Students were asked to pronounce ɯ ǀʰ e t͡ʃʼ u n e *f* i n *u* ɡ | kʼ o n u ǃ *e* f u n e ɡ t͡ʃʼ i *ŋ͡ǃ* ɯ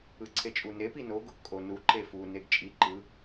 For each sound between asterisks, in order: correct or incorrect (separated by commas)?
incorrect, incorrect, correct, incorrect